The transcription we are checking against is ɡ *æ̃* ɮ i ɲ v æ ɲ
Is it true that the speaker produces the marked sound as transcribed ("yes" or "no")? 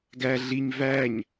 no